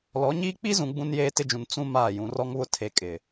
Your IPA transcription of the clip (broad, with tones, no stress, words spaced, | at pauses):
lɔ˨˦ɲiː˦ k͡pi˦zũ˨ ɡ͡bũ˦njeː˦tɪ˦d͡ʒũ˨n t͡sũ˦ maː˦˨jũ˨˦r ɔ˦ŋβʊ˦ tʰe˨kʼɪ˨